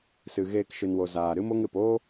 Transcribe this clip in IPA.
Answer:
sɨ˨ɣeː˧kʃɨ˨nwo˨ zaː˨ ɾɨ˦mo˦ŋ ɾɨ˨p oː˦

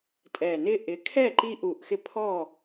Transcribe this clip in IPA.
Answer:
tʼɛ˨˩nɪ˦ʔɪ˨˥kʰɛ˥˨ ǃi˦ʔu˨˩ʔxɪ˦ pʰɔ˥˨

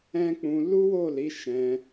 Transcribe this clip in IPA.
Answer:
ɛ̃˦k͡pũ˧ lu˦wo˦˨li˨˦ ʃɛ̃˧

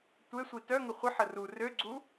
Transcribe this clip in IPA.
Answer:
tʷesʷi tœŋə χʷəħə ru røɡ͡ǀu

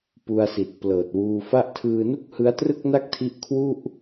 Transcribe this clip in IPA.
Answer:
pu˧a̯si˨˩t̚ plɤː˨˩t̚wuː˧fa˥˩ʔ tʰɯː˧nu˥˩k̚ hɯ˦˥a̯trɯ˥˩k̚na˥˩k̚tʰi˦˥ʔ kʰwu˥˩ʔ

